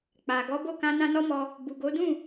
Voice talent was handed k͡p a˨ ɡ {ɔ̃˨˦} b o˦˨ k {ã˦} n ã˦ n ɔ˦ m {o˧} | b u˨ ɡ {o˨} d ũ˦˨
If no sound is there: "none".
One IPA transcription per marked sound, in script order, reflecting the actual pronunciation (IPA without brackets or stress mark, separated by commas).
ɔ˨˦, ã˧, ɔ˧, o˨˦